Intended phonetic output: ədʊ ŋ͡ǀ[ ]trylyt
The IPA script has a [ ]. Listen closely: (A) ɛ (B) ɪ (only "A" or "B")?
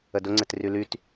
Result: B